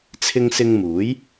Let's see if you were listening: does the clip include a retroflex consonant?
no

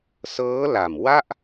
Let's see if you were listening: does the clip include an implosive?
no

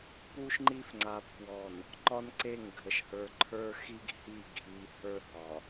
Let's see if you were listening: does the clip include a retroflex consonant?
no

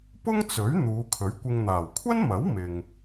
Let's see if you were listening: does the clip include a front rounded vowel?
no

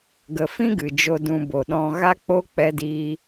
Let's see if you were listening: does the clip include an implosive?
yes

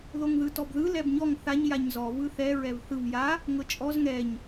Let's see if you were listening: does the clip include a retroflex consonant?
no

